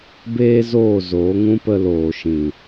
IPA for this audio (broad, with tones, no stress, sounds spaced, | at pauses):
b eː˦ z oː˦˨ z oː˨˦ ŋ ũ˦ p ə˧ l oː˨ ʃ ĩ˨